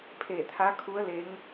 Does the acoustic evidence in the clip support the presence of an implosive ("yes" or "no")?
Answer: no